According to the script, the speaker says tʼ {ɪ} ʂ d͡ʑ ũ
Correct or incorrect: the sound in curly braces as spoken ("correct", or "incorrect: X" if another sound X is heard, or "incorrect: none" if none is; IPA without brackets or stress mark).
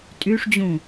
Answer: incorrect: y